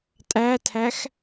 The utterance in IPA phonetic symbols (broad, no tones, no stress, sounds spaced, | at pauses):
tʼ æ tʰ æ x